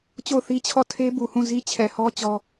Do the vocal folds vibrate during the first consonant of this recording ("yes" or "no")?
no